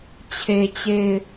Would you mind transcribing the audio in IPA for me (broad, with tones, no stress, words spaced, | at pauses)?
t͡ɕʰe˨ t͡ɕe˦˨ɪ̯